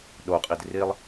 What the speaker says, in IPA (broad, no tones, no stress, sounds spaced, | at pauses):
ɗ o qʼ i d r i lˠ